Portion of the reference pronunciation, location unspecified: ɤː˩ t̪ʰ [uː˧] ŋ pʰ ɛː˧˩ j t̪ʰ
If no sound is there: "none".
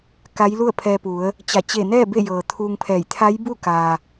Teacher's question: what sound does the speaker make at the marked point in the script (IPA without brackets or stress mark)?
uː˧